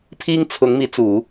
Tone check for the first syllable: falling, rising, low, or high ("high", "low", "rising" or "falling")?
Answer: high